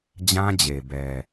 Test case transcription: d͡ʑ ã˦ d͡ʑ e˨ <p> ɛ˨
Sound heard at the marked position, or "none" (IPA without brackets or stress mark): b